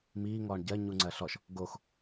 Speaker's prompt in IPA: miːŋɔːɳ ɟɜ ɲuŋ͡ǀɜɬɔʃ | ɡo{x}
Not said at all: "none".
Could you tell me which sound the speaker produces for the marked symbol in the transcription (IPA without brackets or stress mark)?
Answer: x